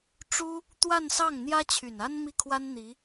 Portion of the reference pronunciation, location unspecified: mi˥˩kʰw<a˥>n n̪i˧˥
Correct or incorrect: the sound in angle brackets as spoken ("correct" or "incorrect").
correct